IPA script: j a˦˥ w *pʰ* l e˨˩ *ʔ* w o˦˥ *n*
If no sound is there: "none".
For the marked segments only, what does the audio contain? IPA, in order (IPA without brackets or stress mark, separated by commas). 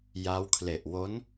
kʰ, ʔ, n